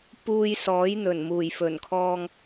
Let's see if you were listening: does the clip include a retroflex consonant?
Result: no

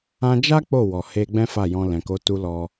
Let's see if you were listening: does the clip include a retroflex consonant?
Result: no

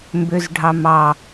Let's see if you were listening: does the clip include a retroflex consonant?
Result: yes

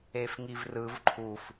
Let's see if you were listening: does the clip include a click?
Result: yes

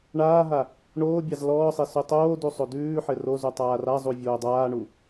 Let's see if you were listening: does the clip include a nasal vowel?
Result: no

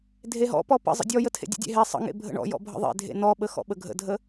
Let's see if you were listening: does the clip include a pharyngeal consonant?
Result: no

